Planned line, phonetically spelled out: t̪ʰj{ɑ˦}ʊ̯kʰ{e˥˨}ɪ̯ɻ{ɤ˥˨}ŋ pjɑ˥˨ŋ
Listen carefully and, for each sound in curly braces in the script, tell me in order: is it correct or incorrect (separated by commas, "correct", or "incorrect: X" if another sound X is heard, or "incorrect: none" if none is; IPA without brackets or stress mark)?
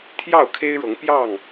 incorrect: ɑ˥˨, incorrect: e˦, incorrect: ɤ˨˦